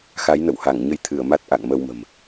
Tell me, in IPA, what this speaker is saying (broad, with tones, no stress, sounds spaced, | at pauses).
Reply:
x a˨˦ j n ə̰˧˨ w h a˧˩ ŋ ɲ ə˧ j t̪ʰ ɨ˧˩ ə̯ m a˦˥ t̚ ʔ a̰˧˨ ŋ m ə˧ w m ə̤˨˩ m